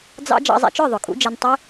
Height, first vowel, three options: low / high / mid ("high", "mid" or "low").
low